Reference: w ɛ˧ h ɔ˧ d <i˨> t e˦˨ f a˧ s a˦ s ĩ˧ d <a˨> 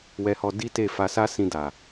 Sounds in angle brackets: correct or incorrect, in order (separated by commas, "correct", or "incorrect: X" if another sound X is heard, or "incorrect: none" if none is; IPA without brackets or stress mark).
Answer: incorrect: i˦, correct